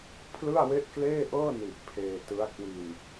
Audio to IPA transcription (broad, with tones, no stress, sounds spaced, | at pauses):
pʰ l ɯ˥˩ a̯ w e˥˩ ʔ k l eː˥˩ ʔ ɤː˥˩ n i˨˩ ʔ pʰ eː˧ t ɯ˦˥ a̯ k w i˧ n